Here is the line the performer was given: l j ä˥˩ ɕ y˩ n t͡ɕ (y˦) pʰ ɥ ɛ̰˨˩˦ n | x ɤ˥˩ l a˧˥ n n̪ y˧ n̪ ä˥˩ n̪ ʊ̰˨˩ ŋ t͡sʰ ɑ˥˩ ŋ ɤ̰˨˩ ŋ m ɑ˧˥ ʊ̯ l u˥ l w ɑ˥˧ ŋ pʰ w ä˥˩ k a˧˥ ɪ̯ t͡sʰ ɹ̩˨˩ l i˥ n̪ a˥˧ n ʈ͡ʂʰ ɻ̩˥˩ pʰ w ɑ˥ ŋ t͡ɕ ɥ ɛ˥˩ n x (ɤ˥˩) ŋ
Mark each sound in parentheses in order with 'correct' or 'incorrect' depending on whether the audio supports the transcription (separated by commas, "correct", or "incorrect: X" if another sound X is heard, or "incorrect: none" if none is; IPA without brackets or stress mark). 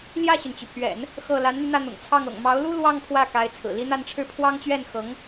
incorrect: y˩, incorrect: ɤ˧˥